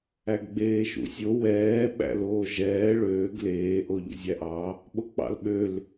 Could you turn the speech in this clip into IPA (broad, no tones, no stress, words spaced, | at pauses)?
æɡɡ͡beːʃṵsʲo wɛː ɓæ̰loːʒɛː ɭøːɡ leː ʔoʎṵzʲæʔɑ | ɓok͡pɑ̰lɓøl